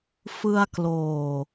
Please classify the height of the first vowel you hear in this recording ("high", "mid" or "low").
high